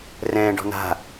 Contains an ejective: no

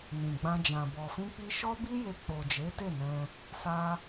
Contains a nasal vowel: yes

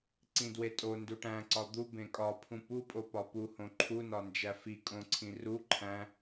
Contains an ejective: yes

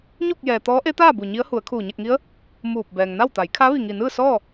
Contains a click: no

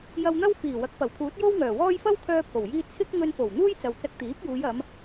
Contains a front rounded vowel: yes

